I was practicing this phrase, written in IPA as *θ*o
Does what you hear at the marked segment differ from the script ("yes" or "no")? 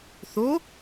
no